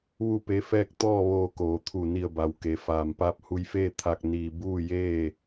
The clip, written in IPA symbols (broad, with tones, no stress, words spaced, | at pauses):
ʋu˥˨pe˧˥fɛː˥˨k̚ t̪ɔː˥˨ʋoː˧koː˩˧t̪ʰu˧˩ ni˧˩ə̯ba˩w ke˩ faː˩mpaː˧˥p̚ hu˧˥jfeː˥˨ t̪ʰa˧k̚ niː˧ buː˥˨jeː˥˨